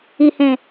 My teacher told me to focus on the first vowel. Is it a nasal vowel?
no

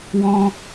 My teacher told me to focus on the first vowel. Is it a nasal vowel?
yes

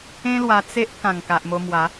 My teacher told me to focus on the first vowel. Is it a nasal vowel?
yes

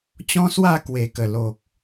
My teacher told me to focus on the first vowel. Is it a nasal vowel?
yes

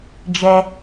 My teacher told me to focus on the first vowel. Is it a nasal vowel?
no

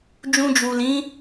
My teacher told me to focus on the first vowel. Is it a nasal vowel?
yes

